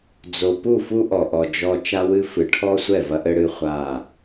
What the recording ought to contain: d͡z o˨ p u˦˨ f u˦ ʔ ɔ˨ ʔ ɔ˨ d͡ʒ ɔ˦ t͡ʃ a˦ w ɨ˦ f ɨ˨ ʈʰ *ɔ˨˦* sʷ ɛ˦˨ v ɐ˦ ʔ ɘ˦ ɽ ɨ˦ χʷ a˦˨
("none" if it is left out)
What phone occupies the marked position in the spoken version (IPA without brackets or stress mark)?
ɔ˦